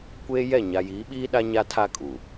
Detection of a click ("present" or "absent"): absent